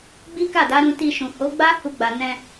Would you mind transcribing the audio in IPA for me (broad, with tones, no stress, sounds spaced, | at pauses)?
ɡ͡b i˦ k a˦˨ d a˨˦ ɾ ũ˧ t i˧ ʃ ũ˨ h o˨˦ ɡ͡b a˦ h u˧ ɡ͡b a˨ n ɛ̃˧